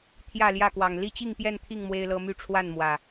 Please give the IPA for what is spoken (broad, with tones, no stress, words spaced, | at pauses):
t̪ʰjä˥˨ljä˥˨kwɑ˨˩ŋ li˥˨t͡ɕi˥˨ŋpjɛ˥˨nt̪ʰi˥˨ŋ mwe˦ɪ̯lɤ˦ my˥˨ʈ͡ʂʰwa˥˨nmwä˨˩